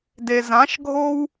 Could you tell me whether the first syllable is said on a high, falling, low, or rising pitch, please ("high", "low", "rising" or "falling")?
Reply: low